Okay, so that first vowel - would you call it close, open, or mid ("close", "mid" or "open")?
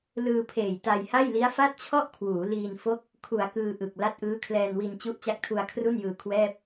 close